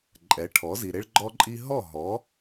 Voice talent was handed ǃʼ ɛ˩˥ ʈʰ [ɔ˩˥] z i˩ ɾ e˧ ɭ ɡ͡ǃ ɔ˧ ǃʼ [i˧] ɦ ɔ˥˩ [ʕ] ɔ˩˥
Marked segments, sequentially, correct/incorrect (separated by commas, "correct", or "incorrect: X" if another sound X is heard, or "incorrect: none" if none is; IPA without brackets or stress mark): correct, correct, incorrect: ɦ